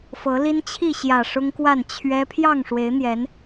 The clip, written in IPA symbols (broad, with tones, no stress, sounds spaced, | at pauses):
f ɤ˨˦ l i˦ n t͡ɕʰ i˥˨ ɕ j ä˨˩ ʂ ʊ˦ ŋ k w a˥˨ n t͡ɕʰ ɥ ɛ˦ pʰ j ɑ˥˨ ŋ ʂ w e˨˦ ɪ̯ n̪ j ɛ˨˦ n